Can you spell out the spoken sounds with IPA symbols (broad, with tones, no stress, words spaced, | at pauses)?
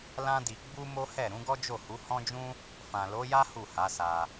lã˦di˧ ɡ͡bu˦mo˦hɛ˦˨ ɾũ˨˦ɡɔ˦d͡ʒo˦˨hu˨˦ hɔ̃˦d͡ʒũ˦ | fã˨lo˨˦ja˦ hu˦˨ha˨˦sa˧